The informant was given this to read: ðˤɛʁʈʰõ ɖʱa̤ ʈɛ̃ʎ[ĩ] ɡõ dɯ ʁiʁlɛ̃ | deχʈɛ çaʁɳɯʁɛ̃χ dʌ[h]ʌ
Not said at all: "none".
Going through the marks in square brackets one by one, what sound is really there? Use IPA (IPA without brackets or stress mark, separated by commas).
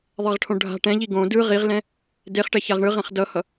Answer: i, h